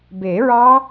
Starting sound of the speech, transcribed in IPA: b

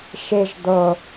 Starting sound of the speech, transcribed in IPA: ʃ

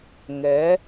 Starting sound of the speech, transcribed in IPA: ŋ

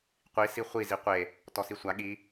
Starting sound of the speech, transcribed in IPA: qʷ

